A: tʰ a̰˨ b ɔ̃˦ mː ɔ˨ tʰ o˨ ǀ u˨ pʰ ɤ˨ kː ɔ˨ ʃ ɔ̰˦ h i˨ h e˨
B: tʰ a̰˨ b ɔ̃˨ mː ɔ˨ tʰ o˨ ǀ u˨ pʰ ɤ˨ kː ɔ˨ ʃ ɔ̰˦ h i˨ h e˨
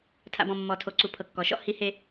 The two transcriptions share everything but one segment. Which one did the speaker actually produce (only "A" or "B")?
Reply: B